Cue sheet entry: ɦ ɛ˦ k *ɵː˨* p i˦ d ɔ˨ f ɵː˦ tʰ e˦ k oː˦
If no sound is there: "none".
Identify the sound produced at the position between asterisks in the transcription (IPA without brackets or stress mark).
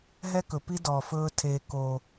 ɵ˨